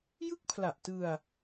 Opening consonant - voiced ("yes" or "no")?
yes